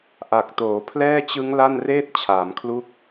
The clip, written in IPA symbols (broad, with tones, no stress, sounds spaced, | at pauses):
ʔ a˨˩ k̚ t oː˩˦ pʰ l ɛː˥˩ t͡ɕ ɯ˦˥ ŋ l a˥˩ n r eː˥˩ t̚ t͡ɕʰ aː˩˦ m kʰ l u˥˩ k̚